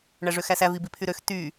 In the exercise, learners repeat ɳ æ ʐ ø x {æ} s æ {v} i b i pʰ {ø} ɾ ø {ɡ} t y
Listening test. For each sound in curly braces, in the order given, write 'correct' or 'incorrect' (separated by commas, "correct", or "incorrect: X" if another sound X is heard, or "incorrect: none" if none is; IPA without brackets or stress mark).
correct, correct, incorrect: y, incorrect: x